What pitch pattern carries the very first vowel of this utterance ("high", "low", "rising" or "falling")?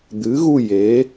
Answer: rising